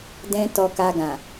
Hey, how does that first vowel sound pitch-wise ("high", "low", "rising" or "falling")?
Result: high